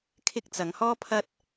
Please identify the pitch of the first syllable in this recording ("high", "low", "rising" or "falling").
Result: high